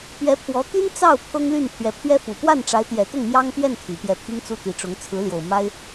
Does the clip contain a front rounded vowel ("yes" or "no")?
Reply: yes